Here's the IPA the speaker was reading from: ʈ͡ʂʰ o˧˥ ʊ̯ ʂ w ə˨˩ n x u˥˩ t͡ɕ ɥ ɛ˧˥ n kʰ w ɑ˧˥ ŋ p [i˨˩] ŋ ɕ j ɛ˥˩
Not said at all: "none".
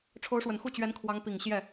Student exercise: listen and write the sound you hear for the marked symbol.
i˨˩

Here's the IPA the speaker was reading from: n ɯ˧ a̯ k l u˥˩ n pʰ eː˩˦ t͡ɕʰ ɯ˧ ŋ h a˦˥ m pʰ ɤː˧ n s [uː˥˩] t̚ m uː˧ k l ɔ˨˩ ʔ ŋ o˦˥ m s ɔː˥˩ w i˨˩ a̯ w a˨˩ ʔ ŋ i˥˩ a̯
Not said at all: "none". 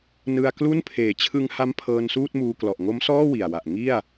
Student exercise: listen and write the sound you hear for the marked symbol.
uː˥˩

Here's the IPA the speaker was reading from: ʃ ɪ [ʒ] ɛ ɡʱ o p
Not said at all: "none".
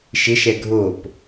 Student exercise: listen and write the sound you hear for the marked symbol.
ʃ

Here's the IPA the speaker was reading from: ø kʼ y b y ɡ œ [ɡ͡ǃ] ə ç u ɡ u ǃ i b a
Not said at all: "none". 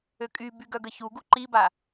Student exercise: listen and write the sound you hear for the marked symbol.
ɡ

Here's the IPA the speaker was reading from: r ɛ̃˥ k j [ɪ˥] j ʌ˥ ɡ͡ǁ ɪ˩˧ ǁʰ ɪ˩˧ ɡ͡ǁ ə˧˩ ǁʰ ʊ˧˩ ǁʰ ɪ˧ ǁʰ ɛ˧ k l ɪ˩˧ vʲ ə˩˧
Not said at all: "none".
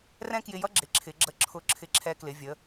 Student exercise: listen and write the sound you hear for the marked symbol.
ɪ˧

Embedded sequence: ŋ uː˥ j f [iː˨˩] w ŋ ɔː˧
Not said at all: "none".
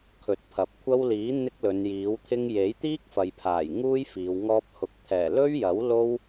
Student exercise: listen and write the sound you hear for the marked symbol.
iː˨˧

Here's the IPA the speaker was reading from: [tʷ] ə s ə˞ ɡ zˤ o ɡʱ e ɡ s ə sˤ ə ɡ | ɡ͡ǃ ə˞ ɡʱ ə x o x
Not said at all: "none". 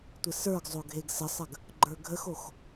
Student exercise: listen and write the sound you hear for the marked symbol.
tʷ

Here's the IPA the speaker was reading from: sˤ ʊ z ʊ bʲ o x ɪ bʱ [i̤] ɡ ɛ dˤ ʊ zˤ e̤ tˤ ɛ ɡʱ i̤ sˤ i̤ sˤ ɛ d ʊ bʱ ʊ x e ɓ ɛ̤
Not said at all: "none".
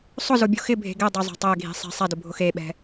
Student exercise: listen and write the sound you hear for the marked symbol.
e̤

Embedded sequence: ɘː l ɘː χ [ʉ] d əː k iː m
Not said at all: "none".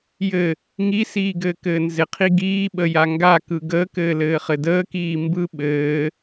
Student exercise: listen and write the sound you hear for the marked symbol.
ɘ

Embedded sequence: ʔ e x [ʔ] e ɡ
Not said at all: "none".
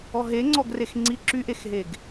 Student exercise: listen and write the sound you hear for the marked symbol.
ɦ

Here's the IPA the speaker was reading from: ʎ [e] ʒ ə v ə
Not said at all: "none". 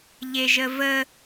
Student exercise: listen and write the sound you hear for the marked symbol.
e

